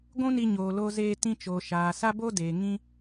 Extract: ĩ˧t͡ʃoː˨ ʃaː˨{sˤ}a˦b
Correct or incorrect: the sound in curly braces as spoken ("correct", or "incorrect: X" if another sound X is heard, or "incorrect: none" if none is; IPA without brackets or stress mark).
incorrect: s